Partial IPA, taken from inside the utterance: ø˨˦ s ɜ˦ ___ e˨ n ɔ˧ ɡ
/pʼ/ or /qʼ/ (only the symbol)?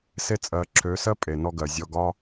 pʼ